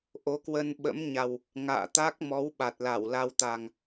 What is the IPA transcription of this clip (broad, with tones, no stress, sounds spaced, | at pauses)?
ʔ o˨˦ k w ə˧ n ɓ ə̰˧˥ m ɲ a˨˩ w | ŋ a̰ː˧˨ t̪ a˦˥ k̚ m ɔ˨˦ w ɓ a˨˩ t̚ l a˧˩ w l a˧ w t̪ a˨˩ ŋ